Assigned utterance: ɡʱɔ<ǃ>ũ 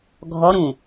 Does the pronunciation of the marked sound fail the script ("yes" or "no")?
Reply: yes